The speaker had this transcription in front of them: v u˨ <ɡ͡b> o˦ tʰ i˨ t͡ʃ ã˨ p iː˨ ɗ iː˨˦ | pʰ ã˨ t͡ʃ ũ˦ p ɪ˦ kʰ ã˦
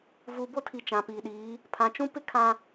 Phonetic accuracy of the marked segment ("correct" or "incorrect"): incorrect